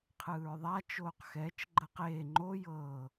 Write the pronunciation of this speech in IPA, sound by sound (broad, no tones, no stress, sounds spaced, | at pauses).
qʰ ɯː ɹ ðˤ a t͡ʃ oː q x ɛ t͡ʃ ɡ͡ǃ ɤ q eː ŋ͡ǃ o j ɤ